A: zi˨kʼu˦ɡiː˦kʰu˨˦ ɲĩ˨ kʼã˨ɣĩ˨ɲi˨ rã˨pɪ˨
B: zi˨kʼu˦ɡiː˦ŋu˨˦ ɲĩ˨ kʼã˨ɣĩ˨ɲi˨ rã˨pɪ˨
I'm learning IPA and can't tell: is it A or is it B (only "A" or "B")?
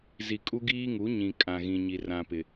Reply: B